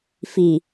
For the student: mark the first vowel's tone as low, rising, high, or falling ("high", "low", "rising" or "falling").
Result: low